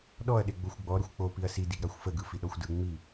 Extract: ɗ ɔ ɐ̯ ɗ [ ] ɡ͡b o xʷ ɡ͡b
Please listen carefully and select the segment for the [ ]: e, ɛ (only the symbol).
e